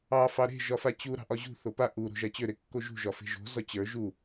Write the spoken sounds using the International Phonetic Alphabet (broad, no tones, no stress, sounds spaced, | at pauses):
ɑ f ɑ ɾ e̤ ʒ ɒ f a t͡ɕ u ɾ ɑ̤ ʔ ɒ ʑ ṳ θ o p a ʔ u ɾ o̤ ʒ a t͡ɕ ø ɾ e kː o ʒ ṳ ʒ ɒ f e̤ ʒ o̤ z ɒ t͡ɕ ə˞ ʒ u